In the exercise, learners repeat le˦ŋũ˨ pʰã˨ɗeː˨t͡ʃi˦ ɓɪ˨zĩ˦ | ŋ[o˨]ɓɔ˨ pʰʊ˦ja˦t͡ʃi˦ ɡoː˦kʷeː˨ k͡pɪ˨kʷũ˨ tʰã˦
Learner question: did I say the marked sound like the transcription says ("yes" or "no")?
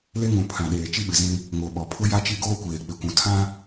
yes